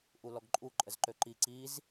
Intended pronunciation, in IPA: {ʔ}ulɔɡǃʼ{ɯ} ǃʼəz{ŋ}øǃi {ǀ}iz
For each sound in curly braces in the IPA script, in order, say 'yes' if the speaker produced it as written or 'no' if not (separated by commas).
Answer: yes, no, no, yes